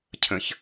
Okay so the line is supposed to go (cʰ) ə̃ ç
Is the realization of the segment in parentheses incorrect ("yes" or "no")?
no